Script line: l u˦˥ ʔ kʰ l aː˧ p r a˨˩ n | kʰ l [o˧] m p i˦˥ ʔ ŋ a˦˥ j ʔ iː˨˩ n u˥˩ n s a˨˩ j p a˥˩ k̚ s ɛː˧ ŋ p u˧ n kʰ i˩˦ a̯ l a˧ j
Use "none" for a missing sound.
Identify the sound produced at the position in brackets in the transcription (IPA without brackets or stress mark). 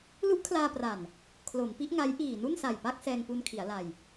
o˩˦